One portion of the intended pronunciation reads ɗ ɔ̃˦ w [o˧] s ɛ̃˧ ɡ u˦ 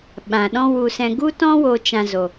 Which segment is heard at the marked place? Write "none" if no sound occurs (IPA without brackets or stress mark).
u˧